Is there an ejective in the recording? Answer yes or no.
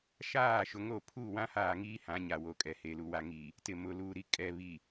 yes